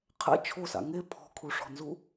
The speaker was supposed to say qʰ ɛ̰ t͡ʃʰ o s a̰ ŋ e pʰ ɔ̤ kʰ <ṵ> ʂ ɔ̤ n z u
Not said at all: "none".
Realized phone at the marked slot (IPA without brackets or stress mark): u